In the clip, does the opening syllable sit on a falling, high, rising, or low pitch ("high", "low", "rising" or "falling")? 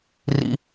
high